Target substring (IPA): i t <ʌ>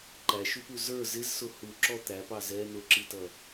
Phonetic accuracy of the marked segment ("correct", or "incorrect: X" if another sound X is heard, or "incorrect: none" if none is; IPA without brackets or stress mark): correct